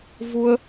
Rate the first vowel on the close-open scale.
close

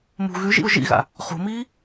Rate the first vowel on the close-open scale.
close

